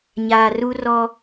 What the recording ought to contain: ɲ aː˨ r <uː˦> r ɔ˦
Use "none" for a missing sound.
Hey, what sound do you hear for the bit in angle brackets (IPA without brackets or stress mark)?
u˦